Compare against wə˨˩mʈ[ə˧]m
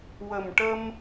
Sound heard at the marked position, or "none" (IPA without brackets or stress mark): ə˧